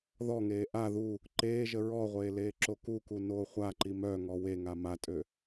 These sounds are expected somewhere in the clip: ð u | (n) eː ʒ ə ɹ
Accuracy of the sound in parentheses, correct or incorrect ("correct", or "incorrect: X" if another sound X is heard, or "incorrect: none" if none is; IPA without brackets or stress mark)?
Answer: incorrect: ǃ